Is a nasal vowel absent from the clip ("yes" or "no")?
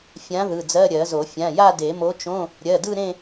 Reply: no